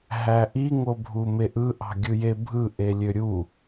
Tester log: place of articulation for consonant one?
glottal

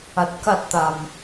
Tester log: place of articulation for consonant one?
alveolar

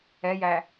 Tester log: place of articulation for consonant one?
palatal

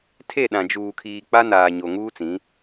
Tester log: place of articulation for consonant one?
alveolar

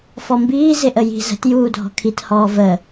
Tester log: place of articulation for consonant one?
labial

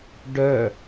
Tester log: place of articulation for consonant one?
retroflex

